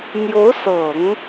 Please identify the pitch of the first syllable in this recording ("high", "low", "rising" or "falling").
rising